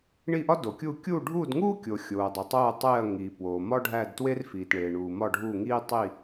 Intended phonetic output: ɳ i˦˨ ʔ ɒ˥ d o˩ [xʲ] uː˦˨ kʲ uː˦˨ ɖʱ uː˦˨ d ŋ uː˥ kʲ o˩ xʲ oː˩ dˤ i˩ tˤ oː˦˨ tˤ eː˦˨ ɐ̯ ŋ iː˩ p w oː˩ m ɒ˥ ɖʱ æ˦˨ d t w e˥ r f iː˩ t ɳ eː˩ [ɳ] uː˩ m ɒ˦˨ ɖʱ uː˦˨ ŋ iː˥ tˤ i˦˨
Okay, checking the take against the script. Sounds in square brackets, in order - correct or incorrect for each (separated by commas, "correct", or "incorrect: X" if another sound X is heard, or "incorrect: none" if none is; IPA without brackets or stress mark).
incorrect: kʲ, correct